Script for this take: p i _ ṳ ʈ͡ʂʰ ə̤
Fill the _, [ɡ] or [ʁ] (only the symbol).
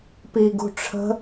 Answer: ɡ